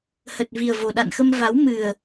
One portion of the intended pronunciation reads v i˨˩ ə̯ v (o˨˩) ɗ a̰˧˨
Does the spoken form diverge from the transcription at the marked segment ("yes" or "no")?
no